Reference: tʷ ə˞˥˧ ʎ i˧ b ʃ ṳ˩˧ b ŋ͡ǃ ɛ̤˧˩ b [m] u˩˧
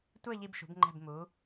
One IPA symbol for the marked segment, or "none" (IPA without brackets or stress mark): m